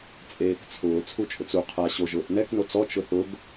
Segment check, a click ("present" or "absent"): absent